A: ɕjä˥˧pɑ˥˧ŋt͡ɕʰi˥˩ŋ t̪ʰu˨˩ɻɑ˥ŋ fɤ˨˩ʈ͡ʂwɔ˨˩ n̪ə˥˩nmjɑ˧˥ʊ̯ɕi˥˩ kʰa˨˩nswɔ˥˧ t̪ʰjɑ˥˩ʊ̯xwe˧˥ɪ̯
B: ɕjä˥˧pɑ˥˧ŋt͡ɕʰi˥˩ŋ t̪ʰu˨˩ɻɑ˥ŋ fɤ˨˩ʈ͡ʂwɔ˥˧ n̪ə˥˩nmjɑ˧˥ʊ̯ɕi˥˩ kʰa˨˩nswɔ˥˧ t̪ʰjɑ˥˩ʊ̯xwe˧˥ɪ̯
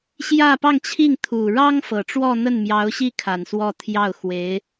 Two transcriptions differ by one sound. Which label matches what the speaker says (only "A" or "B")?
B